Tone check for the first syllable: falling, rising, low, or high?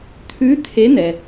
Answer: rising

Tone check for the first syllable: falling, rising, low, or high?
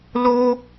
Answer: high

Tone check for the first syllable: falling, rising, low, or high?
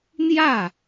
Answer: falling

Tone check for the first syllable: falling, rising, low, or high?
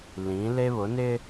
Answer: rising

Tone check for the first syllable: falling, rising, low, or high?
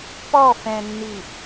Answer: falling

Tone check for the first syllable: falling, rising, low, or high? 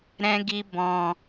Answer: high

